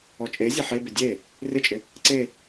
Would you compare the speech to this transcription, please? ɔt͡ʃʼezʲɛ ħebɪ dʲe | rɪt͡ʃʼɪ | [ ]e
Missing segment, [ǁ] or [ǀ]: ǀ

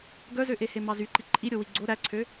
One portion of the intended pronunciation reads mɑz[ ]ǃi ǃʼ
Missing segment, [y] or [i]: y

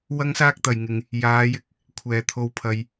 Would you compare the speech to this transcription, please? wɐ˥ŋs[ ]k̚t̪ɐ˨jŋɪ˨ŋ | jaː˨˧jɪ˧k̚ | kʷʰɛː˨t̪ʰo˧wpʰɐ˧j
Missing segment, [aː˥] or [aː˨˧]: aː˥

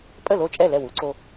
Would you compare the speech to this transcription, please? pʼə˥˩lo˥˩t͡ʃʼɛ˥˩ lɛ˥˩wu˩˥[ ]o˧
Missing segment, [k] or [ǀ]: ǀ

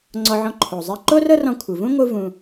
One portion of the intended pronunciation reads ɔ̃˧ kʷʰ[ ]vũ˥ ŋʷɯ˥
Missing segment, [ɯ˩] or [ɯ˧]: ɯ˩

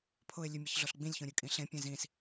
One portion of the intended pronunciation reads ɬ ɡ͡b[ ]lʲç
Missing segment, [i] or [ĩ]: ĩ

